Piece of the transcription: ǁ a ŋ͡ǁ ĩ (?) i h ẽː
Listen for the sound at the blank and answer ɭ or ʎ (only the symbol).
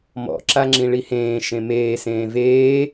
ɭ